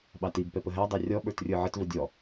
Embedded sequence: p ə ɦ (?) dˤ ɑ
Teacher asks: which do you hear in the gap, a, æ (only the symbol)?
æ